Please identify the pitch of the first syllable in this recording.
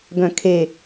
low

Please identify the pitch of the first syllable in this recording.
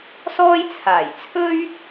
high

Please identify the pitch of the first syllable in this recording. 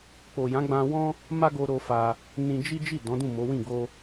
low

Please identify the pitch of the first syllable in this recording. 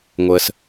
low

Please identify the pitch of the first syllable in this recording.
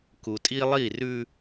low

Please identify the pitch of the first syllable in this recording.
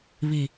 low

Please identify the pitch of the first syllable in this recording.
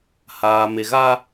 low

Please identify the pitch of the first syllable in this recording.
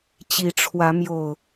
rising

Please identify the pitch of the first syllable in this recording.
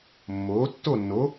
rising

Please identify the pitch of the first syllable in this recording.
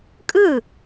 falling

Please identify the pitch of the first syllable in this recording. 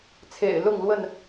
low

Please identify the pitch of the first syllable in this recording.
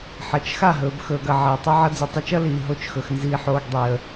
low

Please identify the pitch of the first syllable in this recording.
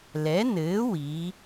rising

